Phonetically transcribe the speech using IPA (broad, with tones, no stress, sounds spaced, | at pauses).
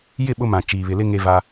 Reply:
j ɪ˦˨ ɓ ʊ˦ m ã˨ t͡ʃ iː˨ β ɪ˨ l ɪ˦ ŋ e˦ v a˦